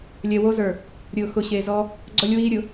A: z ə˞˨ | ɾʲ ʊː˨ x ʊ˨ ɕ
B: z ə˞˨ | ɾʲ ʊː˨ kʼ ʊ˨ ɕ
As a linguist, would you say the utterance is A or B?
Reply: A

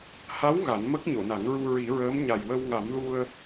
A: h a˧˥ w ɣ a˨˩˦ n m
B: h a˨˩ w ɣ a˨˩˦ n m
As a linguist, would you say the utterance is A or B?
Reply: A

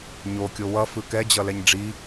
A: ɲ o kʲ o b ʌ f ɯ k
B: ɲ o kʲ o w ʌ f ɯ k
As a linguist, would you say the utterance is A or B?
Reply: B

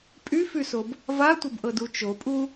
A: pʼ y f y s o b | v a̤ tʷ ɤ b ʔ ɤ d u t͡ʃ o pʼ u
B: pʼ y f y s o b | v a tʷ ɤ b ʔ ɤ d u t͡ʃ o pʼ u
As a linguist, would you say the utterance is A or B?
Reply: B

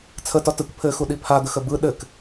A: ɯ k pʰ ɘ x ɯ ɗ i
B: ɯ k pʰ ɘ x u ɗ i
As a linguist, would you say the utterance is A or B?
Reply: B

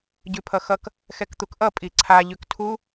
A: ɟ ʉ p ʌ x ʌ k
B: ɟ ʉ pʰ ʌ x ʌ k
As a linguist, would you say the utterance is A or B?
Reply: B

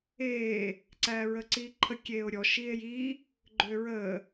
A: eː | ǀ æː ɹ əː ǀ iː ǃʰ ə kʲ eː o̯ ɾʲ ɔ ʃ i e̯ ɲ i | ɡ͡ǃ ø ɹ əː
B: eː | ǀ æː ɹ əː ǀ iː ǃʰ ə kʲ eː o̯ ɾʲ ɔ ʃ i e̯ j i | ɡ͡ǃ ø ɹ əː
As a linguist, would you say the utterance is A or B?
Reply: B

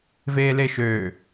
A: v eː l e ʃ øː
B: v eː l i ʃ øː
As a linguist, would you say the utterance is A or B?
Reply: A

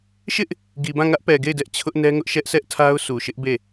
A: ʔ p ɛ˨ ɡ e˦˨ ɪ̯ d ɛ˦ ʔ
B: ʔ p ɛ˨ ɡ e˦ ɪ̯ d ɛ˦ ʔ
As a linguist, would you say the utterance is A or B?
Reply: A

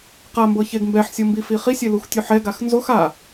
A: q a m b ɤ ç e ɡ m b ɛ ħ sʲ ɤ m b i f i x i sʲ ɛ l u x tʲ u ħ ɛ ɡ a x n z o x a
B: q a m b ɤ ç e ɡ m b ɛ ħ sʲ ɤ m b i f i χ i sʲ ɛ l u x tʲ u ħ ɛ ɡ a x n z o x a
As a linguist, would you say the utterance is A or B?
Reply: B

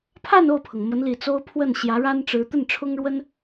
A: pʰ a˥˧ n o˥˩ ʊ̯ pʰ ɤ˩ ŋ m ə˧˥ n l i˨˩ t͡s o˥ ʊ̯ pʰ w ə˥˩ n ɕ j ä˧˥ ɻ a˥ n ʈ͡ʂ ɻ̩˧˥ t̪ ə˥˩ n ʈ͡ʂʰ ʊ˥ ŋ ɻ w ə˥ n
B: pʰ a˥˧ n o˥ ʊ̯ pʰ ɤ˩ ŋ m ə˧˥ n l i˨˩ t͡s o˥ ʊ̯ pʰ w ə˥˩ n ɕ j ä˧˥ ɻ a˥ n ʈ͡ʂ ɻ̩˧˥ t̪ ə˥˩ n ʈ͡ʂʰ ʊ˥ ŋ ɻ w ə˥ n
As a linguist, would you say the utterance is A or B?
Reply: A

